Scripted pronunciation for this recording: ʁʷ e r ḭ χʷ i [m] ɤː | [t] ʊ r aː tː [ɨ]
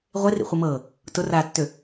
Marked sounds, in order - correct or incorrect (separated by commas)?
correct, correct, incorrect